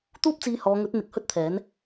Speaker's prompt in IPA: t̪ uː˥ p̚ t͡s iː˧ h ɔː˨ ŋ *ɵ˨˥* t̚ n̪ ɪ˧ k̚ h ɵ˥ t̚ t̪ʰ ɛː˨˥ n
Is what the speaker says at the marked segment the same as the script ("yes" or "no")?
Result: yes